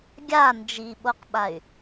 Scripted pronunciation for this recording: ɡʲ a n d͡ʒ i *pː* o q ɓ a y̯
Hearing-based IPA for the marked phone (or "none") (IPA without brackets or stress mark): ɓ